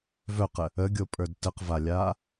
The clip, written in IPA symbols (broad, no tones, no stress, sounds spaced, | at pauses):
v œ q ə | ə ɡʲ o pʼ ə˞ d t ə q v a lʲ aː